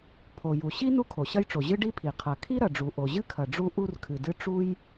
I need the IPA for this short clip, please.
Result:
pʰ o˩ j u˩ ɕ i˥ n u˥ kʰ o˩ ɕ ɐ˥ j ʈ͡ʂ o˩ ʑ ɨ˥ ɖ i˥ pʰ i˩ qʰ ɐ˩ kʰ i˥ ɾ ɐ˩ ɖ͡ʐ u˩ ʔ o˩ ʑ ɨ˥ kʰ ɐ˩ ɖ͡ʐ u˥ ʔ u˥ r kʰ ɨ˩ d ɨ˥ ʈ͡ʂ u˥ j

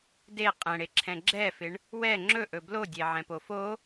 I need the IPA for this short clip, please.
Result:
d e qʼ ɛ̃ ɽ e ǁʰ ɛ̃ ɡ͡ǁ ɛ f ɪ ɳ | w ɛ ŋ͡ǁ ɵ ʔ ɵ b l o dʲ e ʕ ɛ̃ p o f o

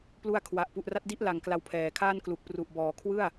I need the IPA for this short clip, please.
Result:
p l u˦˥ a̯ kʰ w a˨˩ ʔ p u˨˩ ʔ r a˦˥ t̚ d i˥˩ ʔ l a˨˩ ŋ k l a˧ w pʰ ɛː˨˩ kʰ aː˥˩ n k l u˨˩ k̚ p r u˨˩ ʔ b ɔː˨˩ kʰ w ɯ˥˩ a̯

